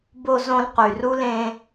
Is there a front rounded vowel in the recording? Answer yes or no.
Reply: yes